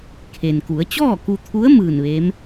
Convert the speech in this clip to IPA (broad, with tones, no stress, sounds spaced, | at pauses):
kʰ e˩ n k u˩˧ ə̯ t͡ɕ ɔː˥˨ k u˧ t̪ʰ u˧˥ ə̯ m ɯː˧˩ n ʋ e˧˥ m